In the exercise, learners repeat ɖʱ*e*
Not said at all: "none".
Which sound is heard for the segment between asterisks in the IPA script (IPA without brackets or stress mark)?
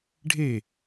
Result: e